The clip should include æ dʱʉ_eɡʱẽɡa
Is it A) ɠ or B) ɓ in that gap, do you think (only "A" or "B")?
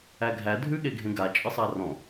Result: A